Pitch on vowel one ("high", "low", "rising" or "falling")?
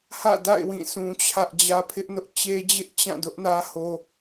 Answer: falling